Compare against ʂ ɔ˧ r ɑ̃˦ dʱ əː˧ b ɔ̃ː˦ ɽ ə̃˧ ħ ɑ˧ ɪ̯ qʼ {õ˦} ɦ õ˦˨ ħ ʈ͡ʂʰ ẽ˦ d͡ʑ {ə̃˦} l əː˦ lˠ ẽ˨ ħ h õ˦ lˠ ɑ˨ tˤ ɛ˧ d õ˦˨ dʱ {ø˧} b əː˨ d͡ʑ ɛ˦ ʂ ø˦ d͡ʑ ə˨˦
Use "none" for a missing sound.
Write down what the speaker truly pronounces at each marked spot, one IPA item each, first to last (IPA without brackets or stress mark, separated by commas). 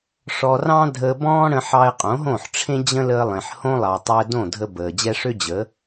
õ˨˦, ə̃˦, ə˧